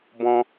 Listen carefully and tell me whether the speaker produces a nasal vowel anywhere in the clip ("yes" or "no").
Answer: yes